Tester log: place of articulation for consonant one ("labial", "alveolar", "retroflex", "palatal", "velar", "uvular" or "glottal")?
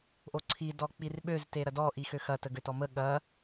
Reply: glottal